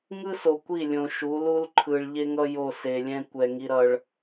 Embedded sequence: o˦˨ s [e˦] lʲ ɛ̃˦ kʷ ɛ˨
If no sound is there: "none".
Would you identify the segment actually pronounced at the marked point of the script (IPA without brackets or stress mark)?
e˨